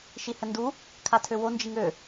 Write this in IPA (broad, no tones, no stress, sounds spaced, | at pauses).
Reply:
ʃ i h ə n d u | kʰ a tʰ ø w o n d͡ʒ i ŋ ø